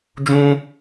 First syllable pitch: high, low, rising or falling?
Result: high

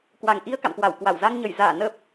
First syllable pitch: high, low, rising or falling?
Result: low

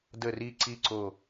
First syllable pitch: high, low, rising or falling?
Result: low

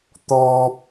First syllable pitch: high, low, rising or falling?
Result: low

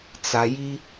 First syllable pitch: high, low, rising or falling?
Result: low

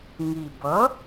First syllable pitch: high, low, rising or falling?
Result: low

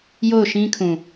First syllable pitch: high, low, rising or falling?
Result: falling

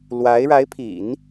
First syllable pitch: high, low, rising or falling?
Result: rising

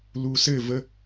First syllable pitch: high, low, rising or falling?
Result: low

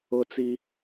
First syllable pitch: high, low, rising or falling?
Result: high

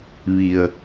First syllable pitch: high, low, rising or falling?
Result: low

